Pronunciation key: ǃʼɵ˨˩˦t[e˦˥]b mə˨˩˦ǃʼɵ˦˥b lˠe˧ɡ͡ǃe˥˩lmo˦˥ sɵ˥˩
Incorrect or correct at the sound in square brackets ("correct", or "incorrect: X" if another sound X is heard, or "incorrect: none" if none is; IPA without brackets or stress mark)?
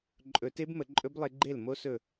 correct